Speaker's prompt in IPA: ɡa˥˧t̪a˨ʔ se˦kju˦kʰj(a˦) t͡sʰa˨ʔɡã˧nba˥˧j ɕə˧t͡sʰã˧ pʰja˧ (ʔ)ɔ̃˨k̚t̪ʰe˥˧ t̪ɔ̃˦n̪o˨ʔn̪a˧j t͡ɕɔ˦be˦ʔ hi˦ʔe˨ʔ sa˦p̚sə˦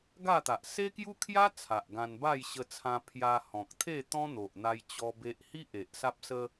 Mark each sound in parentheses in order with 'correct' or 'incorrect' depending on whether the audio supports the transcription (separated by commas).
correct, incorrect